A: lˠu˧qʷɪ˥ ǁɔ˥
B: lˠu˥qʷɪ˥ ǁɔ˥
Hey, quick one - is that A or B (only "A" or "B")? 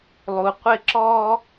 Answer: A